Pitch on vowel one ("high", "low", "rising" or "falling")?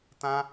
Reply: high